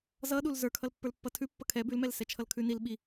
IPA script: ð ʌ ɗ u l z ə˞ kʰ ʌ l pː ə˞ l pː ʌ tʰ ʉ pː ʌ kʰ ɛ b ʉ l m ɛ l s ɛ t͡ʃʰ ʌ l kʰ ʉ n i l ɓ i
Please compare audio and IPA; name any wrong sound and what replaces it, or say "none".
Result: ð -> z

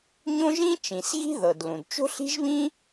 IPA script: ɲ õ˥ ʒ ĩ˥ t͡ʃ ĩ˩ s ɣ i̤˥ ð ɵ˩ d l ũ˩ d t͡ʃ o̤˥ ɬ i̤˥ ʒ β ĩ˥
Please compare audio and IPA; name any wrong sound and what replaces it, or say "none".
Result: ɵ˩ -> ɤ˩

